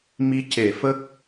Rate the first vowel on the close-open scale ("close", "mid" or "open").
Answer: close